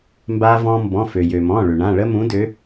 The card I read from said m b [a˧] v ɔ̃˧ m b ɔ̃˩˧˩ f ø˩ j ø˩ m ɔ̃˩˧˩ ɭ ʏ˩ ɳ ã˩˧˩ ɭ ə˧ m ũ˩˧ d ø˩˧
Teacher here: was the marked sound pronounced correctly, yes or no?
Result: yes